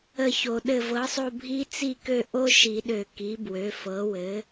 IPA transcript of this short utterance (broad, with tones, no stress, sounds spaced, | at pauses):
ə˦˨ ç o˨˩˦ ɗ ɘ˦˨ v ɤ˩˥ sˤ o˦˨ bʱ i˦˥ t͡s i˦˨ k ø˦˨ ʔ o˦˥ ʃ i˨˩˦ ɗ ø˨˩˦ k i˩˥ b w ø˩˥ f ɤ˩˥ w ɘ˩˥